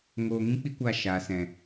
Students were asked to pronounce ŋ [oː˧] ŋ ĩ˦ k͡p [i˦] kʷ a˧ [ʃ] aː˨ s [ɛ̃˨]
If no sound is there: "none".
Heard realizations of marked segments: oː˧, i˦, ʃ, ɛ̃˨

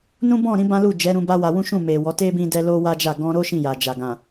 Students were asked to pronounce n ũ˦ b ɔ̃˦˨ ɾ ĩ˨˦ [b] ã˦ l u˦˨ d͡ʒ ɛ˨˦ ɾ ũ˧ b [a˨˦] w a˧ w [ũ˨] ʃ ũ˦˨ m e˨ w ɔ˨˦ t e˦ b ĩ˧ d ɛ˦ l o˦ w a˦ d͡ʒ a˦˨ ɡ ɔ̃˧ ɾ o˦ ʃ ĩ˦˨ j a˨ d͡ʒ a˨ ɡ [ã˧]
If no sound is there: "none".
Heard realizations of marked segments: b, a˦, ũ˦, ã˨

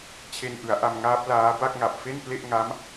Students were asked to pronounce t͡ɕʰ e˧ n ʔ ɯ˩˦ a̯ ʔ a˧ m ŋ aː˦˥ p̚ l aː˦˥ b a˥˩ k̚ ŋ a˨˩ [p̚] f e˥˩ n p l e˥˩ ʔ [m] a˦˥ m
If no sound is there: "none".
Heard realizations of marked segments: p̚, ŋ

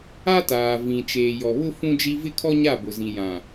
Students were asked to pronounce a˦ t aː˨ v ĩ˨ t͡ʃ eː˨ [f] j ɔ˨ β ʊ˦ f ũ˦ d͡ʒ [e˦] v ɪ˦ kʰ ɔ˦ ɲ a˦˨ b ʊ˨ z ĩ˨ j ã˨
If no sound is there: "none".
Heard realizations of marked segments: none, i˦

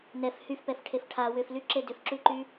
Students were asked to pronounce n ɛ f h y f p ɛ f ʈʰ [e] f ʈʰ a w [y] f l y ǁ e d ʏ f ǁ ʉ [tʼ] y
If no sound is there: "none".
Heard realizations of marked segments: e, ʏ, ǃ

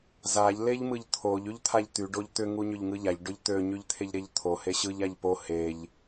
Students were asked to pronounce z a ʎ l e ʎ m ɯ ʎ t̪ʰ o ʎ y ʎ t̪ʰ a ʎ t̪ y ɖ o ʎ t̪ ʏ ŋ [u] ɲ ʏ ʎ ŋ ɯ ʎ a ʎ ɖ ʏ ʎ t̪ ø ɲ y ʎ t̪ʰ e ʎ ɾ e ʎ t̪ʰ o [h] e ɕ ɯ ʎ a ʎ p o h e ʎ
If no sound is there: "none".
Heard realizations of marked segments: u, h

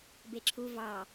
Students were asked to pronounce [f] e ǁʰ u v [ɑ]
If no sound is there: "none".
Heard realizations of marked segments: b, ɑ

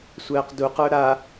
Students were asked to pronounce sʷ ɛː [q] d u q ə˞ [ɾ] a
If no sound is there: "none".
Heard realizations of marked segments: q, ɾ

